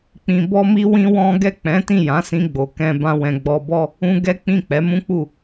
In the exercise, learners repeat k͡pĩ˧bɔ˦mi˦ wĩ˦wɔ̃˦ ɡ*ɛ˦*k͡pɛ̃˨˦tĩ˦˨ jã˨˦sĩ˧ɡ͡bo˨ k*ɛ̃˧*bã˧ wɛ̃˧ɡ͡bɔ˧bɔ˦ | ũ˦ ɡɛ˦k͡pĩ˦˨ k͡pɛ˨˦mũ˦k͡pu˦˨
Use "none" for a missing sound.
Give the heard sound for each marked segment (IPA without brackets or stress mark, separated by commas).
ɛ˦˨, ɛ̃˧